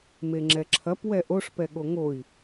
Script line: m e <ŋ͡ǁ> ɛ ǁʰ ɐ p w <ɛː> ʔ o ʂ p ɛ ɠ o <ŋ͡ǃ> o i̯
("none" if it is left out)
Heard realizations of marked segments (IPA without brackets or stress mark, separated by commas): ŋ͡ǁ, ɛ, ŋ